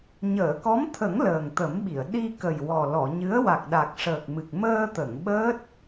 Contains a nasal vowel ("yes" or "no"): no